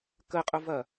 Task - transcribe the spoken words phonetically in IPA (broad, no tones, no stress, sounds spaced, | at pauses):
k ə qʼ ʊ v ɐ